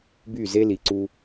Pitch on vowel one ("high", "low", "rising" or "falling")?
falling